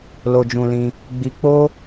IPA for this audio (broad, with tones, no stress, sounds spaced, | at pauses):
l o˧ d͡ʒ ũ˧ l ĩ˧ | ɡ͡b i˧ k͡p o˦